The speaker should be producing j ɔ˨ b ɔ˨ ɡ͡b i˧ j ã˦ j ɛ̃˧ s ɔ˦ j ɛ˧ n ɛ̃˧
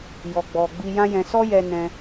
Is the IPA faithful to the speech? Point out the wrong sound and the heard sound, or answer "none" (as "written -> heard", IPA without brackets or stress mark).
b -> ɡ͡b